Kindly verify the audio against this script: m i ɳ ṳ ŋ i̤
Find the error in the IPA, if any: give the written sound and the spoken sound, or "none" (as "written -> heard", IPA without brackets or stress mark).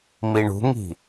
none